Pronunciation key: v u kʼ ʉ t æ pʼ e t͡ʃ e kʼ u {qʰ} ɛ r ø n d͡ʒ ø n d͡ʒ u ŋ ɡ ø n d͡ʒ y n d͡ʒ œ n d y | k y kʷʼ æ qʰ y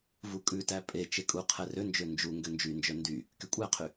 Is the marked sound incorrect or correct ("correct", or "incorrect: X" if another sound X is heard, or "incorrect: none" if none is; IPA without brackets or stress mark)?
correct